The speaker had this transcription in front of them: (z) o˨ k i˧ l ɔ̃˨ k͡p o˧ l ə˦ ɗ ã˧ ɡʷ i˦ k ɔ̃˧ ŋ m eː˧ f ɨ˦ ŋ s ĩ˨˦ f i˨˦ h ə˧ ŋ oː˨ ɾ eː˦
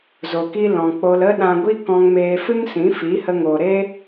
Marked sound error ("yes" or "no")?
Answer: no